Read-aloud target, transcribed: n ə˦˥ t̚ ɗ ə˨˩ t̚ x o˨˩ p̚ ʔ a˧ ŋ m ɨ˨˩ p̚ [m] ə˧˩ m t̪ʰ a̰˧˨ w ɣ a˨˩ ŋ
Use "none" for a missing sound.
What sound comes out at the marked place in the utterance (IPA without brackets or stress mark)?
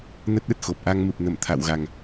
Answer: n